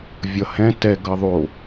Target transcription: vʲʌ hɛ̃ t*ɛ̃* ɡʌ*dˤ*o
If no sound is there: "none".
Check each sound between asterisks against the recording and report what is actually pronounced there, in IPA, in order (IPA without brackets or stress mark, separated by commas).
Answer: ɛ, ðˤ